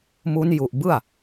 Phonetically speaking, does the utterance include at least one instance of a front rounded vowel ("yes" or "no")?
no